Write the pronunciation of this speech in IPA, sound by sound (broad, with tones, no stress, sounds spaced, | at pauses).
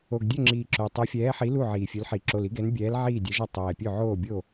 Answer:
o˨˩ ɡ dʲ ø˥˩ ŋ͡ǁ iː˨˩ ǁ o˨˩ tˤ ɛ˨˥ fʲ ɛː˨˥ ħ i˨˥ l u˥˩ ʕ iː˨˩ fʲ ø˨˥ l ħ i˨˩ ǁ o˨˩ l i˨˥ ɡ ɛ˨˥ n bʲ ɛː˨˥ l ʕ iː˥˩ dʲ ɛ˨˥ ʒ ɔ˥˩ tˤ ɛː˨˩ pʲ ø˥˩ ʕ oː˥˩ bʲ o˥˩